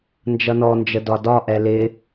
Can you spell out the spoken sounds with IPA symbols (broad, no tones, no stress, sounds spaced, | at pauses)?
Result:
n d͡ʒ ʌ n ɔ n d͡ʒ ə d ɒ d ɒ ʔ ɛ l ɪ